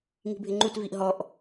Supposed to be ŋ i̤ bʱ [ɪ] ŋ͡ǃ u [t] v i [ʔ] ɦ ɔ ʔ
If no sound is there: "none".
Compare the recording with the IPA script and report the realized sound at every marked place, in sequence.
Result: ɪ, t, ʔ

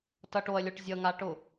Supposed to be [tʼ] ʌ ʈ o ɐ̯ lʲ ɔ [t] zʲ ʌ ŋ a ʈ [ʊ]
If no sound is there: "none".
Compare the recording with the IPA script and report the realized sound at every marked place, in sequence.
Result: t, ʈ, ʊ

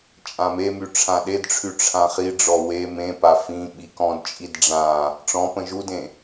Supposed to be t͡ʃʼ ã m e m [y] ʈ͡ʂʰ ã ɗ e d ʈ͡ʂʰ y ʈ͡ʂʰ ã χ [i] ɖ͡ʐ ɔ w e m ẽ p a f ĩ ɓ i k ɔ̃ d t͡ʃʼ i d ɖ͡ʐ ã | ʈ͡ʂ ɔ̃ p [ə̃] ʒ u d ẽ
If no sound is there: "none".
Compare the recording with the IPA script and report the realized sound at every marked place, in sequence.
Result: y, i, ə̃

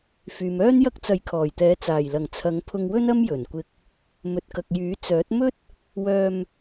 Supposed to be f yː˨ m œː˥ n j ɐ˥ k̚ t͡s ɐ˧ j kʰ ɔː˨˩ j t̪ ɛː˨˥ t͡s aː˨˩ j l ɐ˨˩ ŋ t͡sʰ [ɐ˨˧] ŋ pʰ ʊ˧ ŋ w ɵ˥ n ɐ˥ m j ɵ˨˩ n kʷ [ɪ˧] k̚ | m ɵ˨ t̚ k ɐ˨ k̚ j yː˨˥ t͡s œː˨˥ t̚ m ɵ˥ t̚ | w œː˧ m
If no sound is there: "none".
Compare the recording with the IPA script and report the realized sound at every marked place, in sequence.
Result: ɐ˨˧, ɪ˧

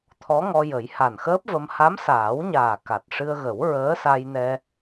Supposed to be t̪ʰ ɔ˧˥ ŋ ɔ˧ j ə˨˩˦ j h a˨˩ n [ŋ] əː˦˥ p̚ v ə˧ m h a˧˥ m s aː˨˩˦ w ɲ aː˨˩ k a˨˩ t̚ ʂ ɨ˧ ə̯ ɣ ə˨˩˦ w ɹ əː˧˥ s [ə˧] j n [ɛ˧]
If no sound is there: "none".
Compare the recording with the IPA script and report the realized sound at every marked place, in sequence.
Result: x, a˧, ɛ˧

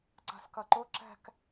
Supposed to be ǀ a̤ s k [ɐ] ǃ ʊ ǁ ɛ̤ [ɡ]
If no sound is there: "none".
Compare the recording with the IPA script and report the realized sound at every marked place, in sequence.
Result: ɐ, k

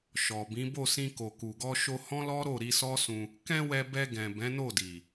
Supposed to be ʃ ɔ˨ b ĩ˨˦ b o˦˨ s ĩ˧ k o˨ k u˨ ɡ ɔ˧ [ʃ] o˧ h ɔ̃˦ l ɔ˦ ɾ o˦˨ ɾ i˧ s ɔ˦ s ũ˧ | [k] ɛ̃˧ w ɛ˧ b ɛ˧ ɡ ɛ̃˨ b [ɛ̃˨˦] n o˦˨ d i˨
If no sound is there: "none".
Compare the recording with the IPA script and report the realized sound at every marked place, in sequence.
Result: ʃ, k, ɛ̃˨˦

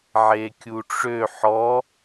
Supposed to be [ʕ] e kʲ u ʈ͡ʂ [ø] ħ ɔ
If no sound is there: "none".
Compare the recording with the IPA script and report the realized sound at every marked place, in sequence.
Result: ʕ, ø

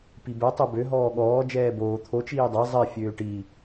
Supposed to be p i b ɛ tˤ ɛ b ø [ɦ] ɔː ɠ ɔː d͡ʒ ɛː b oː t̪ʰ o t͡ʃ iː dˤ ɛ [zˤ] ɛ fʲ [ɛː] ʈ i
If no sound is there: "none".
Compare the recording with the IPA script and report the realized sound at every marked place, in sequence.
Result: ɦ, zˤ, øː

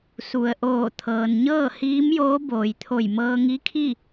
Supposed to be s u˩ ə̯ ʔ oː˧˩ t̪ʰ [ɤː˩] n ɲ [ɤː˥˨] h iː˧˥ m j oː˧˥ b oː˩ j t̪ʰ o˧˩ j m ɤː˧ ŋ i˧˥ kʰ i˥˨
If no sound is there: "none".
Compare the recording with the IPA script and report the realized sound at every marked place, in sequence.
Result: ɤː˩, ɤː˥˨

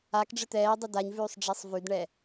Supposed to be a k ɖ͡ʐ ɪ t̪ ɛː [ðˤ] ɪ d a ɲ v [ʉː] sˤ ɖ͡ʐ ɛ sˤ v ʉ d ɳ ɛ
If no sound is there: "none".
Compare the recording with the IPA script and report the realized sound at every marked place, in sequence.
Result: dˤ, ʉː

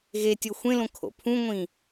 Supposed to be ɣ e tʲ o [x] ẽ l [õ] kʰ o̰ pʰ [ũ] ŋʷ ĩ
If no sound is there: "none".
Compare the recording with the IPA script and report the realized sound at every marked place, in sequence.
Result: xʷ, õ, ũ

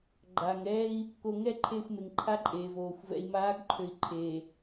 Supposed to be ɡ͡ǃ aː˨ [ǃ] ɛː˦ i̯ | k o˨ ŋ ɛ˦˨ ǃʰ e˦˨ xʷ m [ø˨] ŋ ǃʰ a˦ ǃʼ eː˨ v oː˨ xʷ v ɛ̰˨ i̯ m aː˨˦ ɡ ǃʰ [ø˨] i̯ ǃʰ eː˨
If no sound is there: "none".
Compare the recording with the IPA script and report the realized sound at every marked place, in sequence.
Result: ŋ, e˨, ø˨

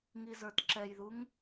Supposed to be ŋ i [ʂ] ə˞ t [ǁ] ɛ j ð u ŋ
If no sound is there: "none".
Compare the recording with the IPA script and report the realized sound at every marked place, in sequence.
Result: z, ǁ

